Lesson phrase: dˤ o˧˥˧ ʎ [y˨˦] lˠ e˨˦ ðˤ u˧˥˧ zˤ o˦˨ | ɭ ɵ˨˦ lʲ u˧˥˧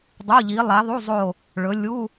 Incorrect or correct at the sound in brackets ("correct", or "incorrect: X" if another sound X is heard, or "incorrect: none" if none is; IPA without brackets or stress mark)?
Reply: incorrect: i˨˦